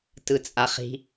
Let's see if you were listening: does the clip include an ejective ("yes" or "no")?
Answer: yes